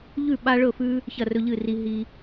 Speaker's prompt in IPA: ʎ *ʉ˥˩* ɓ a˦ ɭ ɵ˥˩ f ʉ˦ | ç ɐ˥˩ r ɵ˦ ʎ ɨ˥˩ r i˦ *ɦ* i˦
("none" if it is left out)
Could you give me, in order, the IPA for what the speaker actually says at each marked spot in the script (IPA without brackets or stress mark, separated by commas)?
ʉ˥˩, ɦ